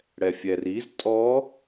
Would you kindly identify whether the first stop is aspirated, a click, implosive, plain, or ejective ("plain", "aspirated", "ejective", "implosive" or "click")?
ejective